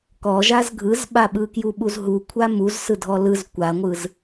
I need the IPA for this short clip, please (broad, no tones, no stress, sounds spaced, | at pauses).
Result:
k ɔ ʒ a z ɡʱ ɯ z ɓ a ɓ ɯ k j u ɓ u z ɦ u kʷʰ a m u z s ɯ dʱ ɔ l ɯ z kʷ a ŋʷ ɯ z